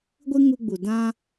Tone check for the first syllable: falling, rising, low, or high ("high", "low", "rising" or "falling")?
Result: high